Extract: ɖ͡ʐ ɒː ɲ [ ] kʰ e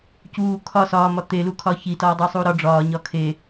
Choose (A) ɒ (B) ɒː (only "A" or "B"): A